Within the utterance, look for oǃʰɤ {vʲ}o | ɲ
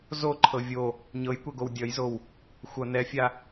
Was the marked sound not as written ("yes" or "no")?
no